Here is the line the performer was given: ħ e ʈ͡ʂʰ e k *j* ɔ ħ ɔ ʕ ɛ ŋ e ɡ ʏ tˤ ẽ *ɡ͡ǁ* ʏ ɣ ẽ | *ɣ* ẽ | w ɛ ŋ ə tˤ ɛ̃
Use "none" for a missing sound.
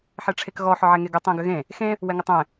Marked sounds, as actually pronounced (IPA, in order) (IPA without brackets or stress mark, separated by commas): ɣ, ɡ, x